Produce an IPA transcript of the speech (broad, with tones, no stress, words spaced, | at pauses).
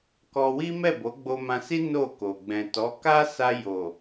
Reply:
kɔ˧wi˦mɛ˦˨ bo˨˦ɡ͡bo˧mã˧si˦ no˦˨ko˨ ɡ͡bɛ̃˨ tɔ˨˦ ka˦sa˧jo˨